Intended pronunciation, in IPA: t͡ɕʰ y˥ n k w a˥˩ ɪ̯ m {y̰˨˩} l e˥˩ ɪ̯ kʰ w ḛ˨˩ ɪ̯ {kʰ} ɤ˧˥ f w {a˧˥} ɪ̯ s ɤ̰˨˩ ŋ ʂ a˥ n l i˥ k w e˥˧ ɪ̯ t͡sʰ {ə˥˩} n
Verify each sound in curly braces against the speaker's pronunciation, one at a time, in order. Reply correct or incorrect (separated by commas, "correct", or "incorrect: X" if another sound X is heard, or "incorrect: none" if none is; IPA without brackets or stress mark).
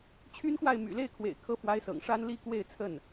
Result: correct, correct, correct, correct